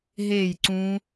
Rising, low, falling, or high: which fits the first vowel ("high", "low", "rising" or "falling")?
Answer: falling